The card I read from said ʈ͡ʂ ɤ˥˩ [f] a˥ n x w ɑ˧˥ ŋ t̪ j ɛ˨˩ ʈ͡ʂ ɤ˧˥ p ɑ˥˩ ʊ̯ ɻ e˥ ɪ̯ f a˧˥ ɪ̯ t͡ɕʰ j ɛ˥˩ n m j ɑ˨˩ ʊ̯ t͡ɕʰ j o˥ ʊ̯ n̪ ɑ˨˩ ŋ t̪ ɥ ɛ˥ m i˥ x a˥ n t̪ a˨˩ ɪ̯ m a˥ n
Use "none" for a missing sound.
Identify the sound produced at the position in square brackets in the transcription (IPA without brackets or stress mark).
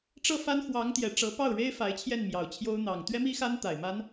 f